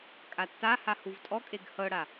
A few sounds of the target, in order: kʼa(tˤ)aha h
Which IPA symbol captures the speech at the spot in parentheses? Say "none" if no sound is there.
tː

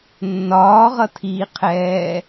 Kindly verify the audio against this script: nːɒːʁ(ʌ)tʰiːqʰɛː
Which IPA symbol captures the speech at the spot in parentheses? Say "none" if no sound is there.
ʌ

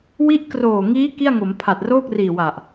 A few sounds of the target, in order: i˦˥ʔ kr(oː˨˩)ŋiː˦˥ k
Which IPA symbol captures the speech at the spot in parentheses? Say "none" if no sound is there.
oː˨˩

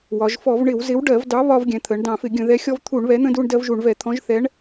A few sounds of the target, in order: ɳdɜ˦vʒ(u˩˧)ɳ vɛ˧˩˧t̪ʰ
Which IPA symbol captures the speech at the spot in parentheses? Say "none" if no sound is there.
u˧˩˧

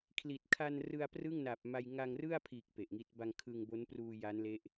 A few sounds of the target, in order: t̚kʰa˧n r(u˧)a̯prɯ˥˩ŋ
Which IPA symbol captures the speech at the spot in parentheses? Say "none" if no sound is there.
ɯ˧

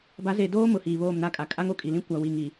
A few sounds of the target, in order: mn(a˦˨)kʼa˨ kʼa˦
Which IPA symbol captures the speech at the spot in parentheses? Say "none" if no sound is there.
a˦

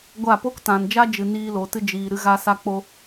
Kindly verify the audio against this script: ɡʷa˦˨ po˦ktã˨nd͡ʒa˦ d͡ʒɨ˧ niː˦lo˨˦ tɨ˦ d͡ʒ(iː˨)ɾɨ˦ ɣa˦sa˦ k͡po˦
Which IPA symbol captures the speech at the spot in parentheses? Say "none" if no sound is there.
iː˨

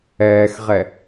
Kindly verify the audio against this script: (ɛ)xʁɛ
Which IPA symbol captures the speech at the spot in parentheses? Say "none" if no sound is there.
ɛː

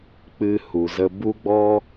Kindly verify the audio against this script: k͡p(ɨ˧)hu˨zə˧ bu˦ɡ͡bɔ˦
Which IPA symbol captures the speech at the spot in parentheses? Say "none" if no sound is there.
ɨ˧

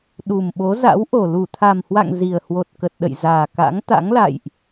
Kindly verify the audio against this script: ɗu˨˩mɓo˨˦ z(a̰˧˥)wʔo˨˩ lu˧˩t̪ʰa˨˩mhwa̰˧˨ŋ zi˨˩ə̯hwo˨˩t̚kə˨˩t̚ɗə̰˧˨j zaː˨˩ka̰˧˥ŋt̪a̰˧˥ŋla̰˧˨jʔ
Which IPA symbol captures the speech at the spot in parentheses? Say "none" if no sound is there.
a̰˧˥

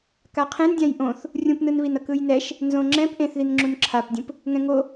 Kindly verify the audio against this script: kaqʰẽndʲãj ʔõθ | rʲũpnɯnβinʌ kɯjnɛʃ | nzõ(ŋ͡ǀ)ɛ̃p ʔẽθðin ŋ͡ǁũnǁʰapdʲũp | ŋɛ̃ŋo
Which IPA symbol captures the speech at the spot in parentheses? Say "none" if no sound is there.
ŋ͡ǁ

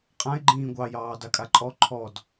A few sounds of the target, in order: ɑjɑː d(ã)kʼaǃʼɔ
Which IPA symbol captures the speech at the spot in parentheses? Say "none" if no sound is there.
a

